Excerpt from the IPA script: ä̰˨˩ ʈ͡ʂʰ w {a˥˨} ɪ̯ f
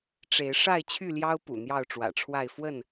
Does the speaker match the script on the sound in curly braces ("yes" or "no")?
yes